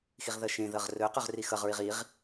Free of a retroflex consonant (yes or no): yes